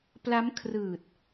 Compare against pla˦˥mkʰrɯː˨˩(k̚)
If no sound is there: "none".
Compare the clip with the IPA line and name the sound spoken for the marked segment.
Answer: t̚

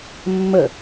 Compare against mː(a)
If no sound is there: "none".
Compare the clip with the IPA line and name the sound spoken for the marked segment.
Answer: ə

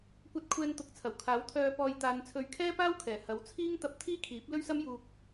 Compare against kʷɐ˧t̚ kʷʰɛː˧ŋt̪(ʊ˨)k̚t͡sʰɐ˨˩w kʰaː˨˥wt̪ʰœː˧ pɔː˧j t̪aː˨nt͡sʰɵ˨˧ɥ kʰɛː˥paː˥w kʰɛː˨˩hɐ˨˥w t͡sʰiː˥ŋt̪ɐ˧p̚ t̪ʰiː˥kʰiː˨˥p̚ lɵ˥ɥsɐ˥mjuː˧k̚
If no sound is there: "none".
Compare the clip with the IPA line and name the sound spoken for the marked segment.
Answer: ʊ˨˥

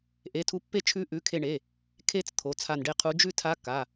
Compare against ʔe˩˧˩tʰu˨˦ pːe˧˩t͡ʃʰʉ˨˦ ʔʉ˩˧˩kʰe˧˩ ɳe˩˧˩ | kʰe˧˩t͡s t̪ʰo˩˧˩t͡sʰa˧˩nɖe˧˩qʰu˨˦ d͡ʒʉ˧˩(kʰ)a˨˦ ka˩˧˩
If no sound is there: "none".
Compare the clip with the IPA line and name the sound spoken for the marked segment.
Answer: tʰ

